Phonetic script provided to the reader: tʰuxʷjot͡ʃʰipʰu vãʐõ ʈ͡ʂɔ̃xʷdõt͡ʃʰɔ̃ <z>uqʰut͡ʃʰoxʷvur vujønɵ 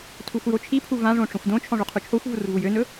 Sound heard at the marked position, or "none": ʐ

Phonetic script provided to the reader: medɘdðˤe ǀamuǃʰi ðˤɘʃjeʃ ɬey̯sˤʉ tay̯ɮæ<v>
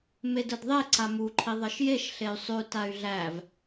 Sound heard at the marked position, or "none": v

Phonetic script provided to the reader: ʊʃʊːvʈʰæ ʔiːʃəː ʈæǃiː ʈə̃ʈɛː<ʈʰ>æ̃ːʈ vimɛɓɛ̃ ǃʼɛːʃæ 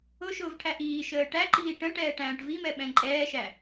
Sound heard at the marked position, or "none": ʈ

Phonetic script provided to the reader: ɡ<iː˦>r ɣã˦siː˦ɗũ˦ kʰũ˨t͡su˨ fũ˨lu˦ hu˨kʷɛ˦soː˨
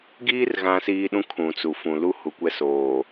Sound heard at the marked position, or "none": iː˦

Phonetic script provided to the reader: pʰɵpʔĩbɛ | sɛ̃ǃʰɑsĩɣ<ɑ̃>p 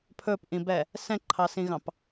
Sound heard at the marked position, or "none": ɑ̃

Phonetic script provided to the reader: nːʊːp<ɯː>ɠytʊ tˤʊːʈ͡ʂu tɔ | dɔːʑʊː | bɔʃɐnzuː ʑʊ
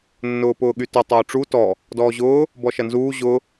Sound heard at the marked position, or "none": ʊː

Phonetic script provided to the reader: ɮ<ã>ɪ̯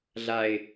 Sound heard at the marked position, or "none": a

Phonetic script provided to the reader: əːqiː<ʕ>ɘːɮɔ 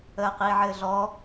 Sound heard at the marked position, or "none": ʕ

